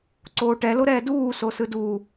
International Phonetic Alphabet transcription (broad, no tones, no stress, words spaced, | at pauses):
ǀoːʈɛloɾɛː duː sosɯdu